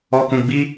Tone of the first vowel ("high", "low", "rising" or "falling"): low